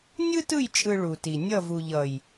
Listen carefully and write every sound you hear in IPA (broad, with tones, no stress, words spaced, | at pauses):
nʲɯ˦tɯ˦˨jt͡ʃʼɯ˨ ɭu˨ti˨ nʲʌ˦˨vu˨ʎʌ˨j